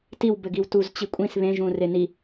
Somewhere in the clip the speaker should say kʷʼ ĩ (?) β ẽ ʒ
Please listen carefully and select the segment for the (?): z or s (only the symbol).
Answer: s